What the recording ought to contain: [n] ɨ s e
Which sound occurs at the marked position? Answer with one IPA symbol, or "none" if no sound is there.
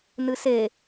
n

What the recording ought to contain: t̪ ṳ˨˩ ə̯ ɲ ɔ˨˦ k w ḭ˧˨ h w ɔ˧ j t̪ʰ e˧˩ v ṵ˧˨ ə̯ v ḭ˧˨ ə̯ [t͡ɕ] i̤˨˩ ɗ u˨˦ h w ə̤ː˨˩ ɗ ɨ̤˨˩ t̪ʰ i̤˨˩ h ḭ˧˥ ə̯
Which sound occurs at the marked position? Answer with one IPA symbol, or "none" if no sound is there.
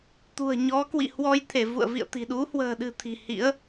t̪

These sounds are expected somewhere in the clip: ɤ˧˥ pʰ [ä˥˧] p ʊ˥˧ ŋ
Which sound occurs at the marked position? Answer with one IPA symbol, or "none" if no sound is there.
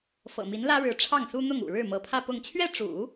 ä˥˧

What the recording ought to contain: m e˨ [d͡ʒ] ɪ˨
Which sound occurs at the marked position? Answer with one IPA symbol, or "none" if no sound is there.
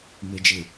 d͡ʒ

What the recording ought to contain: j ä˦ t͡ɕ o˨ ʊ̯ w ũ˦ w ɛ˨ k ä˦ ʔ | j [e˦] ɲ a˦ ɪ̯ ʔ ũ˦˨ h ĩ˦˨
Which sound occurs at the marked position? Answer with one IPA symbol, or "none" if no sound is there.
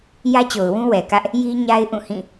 i˦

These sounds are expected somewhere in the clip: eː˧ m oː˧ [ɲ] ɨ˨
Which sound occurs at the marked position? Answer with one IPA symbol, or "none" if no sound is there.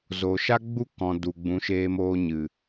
ɲ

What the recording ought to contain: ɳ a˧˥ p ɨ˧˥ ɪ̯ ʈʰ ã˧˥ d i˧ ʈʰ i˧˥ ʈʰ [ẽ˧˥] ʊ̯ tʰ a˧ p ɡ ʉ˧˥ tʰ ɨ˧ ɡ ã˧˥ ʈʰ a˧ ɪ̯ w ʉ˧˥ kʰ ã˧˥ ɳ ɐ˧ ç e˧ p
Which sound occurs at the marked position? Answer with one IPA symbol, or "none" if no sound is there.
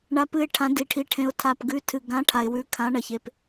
ẽ˧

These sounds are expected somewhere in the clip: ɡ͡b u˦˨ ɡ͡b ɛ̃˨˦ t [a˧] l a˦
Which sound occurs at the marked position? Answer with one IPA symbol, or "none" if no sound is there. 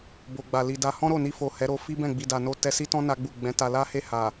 a˧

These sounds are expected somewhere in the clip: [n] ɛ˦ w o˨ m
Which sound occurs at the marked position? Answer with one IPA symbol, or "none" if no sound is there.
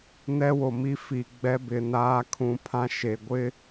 n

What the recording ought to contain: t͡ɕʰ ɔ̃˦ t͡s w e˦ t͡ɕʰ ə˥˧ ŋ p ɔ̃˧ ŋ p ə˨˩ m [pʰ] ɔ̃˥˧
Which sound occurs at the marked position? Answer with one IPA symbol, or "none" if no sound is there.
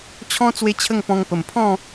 pʰ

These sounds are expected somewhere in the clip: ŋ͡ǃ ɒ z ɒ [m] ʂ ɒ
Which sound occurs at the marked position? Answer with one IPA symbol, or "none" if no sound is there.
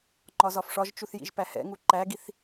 f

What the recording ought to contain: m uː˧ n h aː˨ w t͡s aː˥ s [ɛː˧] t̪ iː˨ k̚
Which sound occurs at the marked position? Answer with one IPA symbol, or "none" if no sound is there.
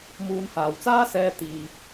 ɛː˧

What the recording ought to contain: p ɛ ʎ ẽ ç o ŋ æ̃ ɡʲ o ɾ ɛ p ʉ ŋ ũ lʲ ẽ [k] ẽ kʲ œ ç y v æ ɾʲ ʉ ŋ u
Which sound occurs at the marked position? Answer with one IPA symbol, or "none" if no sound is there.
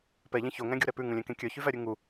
k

